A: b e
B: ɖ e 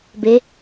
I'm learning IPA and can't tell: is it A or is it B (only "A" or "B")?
A